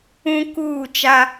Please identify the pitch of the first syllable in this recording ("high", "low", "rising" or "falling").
high